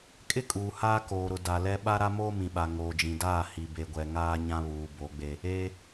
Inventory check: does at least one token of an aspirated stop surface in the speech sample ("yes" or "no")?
no